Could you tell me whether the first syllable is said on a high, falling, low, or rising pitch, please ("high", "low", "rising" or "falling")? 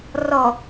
low